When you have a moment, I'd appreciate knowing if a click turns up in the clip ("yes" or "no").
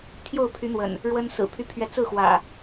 no